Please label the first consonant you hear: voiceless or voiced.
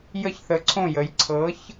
voiced